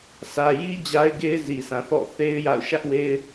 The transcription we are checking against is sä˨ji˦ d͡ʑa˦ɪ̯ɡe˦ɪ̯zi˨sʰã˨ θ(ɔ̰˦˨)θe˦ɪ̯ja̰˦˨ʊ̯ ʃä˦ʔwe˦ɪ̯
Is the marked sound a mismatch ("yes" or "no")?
no